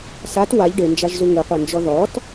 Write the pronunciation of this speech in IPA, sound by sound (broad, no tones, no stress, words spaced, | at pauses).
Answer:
sat waʎ ɖend͡ʒaʒzu ŋɯqʷɛnd͡ʒɔ ðɔt